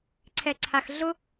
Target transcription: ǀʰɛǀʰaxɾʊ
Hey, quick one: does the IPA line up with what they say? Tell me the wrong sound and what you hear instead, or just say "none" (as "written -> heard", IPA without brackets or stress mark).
ɾ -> ɮ